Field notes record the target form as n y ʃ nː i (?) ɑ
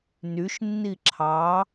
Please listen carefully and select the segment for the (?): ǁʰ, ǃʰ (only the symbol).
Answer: ǁʰ